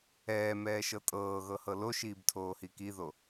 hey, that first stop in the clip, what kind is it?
ejective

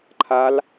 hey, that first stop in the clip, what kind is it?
click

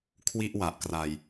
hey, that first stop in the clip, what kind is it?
aspirated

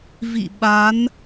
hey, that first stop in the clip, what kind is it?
implosive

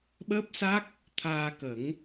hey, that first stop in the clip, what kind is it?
implosive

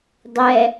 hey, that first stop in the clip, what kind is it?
plain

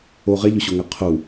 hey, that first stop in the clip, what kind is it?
aspirated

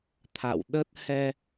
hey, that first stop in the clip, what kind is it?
aspirated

